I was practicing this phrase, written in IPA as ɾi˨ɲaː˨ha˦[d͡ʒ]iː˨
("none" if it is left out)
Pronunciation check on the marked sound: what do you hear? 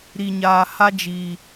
d͡ʒ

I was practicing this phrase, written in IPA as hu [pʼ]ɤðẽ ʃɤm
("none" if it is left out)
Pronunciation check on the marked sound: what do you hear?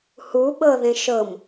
ɓ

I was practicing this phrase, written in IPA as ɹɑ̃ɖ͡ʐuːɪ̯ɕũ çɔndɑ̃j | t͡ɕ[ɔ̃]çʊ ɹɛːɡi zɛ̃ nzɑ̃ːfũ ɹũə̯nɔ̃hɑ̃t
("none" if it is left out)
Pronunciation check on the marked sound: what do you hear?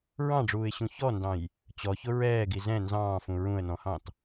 ɔ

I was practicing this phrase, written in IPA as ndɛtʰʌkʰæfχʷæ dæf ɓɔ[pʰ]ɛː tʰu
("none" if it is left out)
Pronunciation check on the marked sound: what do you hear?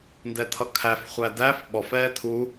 f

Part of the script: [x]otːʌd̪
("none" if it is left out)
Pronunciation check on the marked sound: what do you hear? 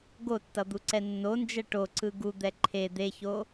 ɡ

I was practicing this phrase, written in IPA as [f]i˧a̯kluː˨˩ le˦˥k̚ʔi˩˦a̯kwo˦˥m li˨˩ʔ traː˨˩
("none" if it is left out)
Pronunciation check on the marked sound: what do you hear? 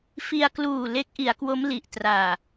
f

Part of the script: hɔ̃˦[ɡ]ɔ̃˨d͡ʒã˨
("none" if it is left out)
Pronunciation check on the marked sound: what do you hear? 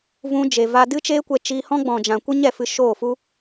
ɡ͡b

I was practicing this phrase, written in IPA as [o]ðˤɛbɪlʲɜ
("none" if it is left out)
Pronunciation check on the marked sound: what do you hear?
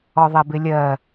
ɔ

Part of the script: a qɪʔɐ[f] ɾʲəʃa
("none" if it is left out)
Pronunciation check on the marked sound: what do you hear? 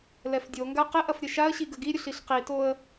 f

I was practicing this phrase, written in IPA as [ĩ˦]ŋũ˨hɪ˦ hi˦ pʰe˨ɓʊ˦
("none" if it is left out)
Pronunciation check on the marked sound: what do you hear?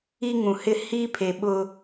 i˦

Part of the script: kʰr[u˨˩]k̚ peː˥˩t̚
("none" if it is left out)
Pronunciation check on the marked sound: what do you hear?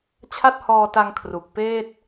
u˨˩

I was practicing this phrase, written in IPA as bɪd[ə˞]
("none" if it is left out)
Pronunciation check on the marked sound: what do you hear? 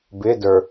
ə˞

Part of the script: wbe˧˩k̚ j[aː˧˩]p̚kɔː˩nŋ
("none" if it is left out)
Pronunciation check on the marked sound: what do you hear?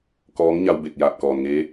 aː˧˩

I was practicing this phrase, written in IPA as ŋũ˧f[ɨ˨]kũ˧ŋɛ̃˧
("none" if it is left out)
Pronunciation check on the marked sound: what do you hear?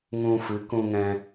ɨ˨˦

